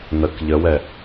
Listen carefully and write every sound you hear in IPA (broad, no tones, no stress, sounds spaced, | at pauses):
n ə k ʎ ə w ɛ